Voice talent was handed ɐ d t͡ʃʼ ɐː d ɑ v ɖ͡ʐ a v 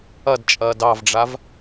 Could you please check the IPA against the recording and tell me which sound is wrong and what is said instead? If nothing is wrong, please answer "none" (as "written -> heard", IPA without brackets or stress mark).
none